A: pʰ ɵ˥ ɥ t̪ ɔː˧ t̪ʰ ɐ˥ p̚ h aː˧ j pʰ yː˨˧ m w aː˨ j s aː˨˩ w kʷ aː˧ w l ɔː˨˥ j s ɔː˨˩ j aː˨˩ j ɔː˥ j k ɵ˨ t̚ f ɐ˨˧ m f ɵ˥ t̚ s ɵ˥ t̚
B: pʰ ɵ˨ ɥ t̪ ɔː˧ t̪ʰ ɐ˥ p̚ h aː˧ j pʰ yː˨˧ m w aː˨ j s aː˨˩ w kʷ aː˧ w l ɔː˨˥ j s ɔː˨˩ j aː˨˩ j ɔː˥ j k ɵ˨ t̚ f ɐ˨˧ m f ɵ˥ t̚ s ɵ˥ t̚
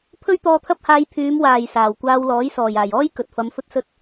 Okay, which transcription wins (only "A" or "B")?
A